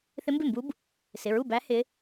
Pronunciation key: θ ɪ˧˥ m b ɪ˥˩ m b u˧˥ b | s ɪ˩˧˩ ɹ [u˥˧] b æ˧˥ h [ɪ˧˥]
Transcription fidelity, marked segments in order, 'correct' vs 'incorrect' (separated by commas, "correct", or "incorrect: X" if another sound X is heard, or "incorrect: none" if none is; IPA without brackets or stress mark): incorrect: u˥˩, correct